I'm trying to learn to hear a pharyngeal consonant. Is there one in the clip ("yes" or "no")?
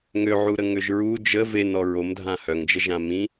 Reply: yes